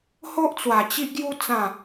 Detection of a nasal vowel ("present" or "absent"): present